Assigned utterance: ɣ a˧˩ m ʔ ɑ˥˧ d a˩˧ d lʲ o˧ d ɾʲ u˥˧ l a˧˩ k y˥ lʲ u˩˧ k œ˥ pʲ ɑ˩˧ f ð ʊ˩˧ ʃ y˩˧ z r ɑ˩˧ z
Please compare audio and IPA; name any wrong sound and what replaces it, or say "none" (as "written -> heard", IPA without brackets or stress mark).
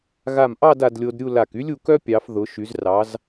none